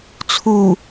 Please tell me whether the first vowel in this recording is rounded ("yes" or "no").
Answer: yes